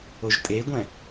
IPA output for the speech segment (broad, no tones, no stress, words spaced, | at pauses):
oʒtʼeɡʷɛ̃